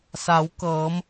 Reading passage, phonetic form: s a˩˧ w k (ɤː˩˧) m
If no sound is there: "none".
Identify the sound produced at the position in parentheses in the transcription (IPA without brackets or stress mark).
ɤː˩˧